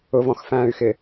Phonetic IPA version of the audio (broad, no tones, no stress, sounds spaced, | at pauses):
ʊ v ɔ̃ x f æ̃ː y̯ x ɪ